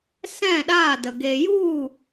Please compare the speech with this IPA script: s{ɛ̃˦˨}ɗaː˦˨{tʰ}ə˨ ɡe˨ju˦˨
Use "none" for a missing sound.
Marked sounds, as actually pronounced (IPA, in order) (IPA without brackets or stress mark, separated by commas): ɛ̃˦˨, d